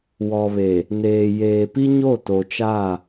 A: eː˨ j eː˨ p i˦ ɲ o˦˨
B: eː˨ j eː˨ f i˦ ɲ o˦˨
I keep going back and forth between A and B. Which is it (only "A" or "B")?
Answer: A